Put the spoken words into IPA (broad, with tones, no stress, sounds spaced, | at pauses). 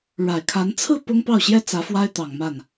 ɻ a˨˩ ɪ̯ kʰ a˧˥ n t͡sʰ ɹ̩˥˩ p ʊ˥ ŋ p ɑ˥˩ ʊ̯ ɕ j ɛ˥ t͡s ä˧˥ f w a˥ ɪ̯ t̪ ɑ˨˩ ŋ m a˥˩ n